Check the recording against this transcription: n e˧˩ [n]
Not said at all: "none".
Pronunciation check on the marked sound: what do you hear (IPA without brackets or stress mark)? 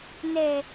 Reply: none